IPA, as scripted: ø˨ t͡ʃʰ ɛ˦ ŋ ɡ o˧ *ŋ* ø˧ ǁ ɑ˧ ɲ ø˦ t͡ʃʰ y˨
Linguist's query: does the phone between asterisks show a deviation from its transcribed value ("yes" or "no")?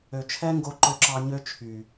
yes